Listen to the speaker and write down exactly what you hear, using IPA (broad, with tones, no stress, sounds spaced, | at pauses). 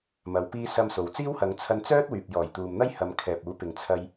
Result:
m ɐ˨˧ w p iː˥ s ɐ˥ m s o˨ w t͡s iː˥ w h ɐ˨˧ ŋ t͡sʰ ɐ˧ n t͡s œː˥ t̚ w yː˨ p̚ j ɔː˨˩ j t̪ uː˨ m n̪ ɐ˥ j h ɐ˨˧ m kʰ ɛː˨ p̚ uː˨˥ p ɪ˨ ŋ t͡sʰ ɐ˧ j